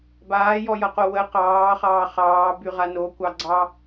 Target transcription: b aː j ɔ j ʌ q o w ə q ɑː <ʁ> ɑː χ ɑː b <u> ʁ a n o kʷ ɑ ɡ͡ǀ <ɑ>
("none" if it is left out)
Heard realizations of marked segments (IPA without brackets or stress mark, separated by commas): χ, y, ɑ